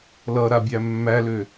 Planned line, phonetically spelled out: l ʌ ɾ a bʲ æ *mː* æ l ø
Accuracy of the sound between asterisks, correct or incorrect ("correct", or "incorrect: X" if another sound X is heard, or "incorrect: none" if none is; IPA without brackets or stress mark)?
correct